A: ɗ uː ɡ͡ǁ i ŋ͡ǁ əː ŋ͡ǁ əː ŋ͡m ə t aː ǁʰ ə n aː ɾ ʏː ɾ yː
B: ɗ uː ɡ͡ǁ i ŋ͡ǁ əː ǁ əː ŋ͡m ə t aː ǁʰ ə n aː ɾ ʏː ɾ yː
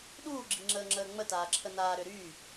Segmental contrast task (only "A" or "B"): A